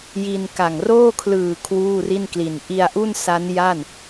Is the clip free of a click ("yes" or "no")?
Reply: yes